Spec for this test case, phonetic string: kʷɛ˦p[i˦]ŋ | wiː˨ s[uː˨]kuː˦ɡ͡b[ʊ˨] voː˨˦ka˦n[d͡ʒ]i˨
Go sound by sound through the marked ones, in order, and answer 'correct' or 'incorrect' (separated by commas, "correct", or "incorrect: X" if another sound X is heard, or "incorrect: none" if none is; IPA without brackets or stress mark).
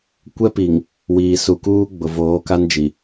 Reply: incorrect: i˨, incorrect: u˨, correct, correct